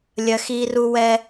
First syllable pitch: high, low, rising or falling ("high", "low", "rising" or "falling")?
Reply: high